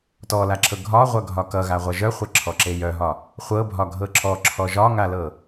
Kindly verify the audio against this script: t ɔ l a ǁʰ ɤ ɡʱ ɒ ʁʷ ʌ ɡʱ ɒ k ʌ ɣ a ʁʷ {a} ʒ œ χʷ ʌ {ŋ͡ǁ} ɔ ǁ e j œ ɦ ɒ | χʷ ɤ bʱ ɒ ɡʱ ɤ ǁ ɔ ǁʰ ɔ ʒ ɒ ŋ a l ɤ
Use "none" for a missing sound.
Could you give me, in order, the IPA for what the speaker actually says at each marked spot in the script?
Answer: ʌ, ǁʰ

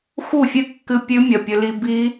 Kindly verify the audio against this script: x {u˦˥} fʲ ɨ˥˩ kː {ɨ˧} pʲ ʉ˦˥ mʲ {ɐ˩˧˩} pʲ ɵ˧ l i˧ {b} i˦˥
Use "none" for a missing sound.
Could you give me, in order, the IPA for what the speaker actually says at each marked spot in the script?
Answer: u˥˩, ɨ˧, ɐ˩˧˩, b

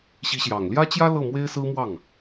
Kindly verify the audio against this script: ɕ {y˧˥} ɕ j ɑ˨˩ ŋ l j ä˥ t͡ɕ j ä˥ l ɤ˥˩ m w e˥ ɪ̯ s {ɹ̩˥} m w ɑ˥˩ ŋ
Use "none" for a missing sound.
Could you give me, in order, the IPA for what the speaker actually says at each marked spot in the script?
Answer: i˧˥, ɹ̩˥

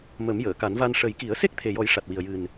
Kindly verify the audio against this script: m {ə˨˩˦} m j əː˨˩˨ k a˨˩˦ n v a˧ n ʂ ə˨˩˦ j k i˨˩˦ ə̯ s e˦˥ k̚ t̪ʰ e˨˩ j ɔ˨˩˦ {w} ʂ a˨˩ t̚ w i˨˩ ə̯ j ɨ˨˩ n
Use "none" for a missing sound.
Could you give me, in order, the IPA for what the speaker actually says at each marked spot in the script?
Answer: ə˨˩˦, j

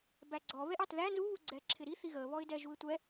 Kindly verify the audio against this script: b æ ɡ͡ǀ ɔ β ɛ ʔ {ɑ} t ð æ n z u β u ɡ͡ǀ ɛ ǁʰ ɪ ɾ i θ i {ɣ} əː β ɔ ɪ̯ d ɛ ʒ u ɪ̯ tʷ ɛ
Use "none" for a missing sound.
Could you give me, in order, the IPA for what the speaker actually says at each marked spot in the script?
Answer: ɑ, ɣ

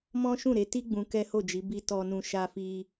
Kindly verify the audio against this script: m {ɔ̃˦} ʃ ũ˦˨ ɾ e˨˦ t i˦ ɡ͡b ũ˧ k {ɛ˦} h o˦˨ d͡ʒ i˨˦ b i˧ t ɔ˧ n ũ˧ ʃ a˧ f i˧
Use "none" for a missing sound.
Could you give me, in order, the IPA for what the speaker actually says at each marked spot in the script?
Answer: ɔ̃˦, ɛ˦

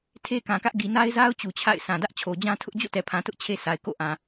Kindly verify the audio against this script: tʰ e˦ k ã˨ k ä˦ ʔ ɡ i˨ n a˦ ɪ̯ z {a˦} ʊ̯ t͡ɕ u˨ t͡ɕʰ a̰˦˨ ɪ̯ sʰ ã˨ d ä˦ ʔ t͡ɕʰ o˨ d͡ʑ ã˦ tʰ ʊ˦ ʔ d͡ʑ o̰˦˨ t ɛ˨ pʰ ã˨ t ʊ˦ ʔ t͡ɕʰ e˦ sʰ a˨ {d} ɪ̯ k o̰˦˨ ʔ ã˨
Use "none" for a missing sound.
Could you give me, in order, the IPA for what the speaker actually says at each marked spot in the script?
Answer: a˦, none

